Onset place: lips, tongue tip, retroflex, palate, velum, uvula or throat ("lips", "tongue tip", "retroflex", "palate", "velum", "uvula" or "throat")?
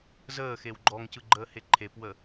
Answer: tongue tip